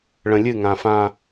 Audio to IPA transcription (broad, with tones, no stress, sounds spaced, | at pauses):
ɭ ə̃˨ lʲ ɨ˦˨ ŋ ã˨ f ã˦